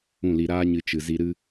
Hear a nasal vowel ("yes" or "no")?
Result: yes